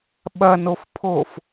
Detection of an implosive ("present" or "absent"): present